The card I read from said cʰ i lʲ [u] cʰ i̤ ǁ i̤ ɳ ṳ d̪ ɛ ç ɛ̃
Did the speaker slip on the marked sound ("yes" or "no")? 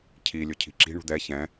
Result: yes